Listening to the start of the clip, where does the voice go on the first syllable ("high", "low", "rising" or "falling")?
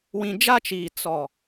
low